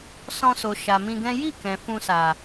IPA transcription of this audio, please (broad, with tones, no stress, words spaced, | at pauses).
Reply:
sɔ̃˧so˨ ʃa˨mĩ˧ɡɛ̃˦ ji˦˨ kɛ̃˨ fũ˧sa˨